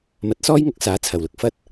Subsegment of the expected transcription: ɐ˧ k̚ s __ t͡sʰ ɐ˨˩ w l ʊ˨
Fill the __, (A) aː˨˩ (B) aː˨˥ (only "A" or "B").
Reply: B